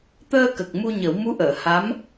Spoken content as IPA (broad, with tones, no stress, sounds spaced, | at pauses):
t̪ əː˧ k ə˨˩ k̚ m u˧ ɲ ə˨˩˦ w m u˧˥ ʔ əː˨˩˨ h a˧˥ m